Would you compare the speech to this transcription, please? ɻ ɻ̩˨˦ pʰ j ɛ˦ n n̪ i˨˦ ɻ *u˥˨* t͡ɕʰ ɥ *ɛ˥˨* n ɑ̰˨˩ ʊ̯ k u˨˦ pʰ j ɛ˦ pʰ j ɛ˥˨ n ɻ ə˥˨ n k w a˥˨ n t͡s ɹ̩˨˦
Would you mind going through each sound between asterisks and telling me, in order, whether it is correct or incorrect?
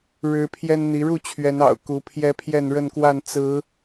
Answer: correct, incorrect: ɛ˨˦

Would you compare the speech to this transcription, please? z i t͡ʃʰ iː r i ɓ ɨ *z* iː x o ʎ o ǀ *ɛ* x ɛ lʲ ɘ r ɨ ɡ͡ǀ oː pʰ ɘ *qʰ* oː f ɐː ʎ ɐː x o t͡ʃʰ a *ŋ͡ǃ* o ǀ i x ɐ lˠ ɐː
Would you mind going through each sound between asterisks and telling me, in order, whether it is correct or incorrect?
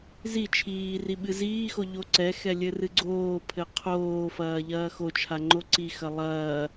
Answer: correct, correct, correct, correct

